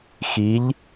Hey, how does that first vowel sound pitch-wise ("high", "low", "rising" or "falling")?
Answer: rising